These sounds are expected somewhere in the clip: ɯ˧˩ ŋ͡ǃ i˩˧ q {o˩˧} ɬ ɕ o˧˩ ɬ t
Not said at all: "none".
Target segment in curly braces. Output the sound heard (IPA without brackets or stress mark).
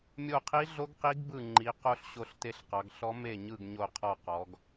o˧˥